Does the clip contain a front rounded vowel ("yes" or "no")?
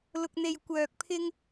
yes